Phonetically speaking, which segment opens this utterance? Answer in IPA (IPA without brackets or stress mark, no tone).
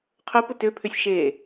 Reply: qʰ